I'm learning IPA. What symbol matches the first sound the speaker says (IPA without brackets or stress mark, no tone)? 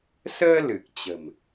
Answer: s